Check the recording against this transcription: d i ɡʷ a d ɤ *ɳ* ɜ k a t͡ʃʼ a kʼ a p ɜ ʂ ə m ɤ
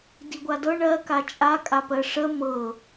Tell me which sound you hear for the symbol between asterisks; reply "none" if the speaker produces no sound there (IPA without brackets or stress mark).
ɳ